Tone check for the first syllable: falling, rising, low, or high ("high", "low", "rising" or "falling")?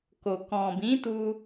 low